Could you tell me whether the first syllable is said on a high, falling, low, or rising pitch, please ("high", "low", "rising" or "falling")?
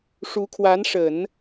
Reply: rising